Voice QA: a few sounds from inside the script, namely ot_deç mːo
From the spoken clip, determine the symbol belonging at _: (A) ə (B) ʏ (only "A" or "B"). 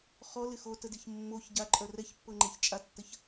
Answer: A